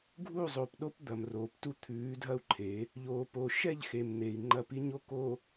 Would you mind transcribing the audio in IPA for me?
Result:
ɡʱu˦˨zˤo˨pɗo˦p d̪ɐ˨mroː˨ptu˦ t̪ʰʉː˨˦dʱɐ˦u̯ǃʰe˨˦ | ʎoː˨po˨ ʃɛ˦˨ʎxe˨m n̪e˨i̯ ŋ͡ǃɐ˦˨pi˦ɲo˦ ko˨

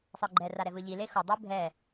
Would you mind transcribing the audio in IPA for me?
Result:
sˤɯɡ͡ǃɛ raɾɛvɯʎi lexo dˤɯbʱɛ

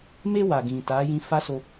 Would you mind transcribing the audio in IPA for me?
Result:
me˧ wa˨ɡĩ˨ta˨˦ jĩ˧fa˦so˧

